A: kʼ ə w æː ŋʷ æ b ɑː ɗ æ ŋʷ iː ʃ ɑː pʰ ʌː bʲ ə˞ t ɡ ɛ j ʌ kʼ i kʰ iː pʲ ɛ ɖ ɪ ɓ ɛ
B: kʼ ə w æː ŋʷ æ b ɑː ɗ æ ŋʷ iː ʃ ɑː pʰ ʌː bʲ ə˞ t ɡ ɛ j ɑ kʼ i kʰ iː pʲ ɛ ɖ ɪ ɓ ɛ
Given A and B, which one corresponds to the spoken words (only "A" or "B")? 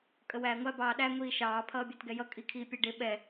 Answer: A